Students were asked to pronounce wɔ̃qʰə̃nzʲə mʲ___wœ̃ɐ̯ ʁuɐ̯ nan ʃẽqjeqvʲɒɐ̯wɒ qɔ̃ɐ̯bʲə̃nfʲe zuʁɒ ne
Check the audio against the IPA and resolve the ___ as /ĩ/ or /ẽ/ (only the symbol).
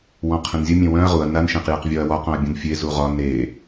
ẽ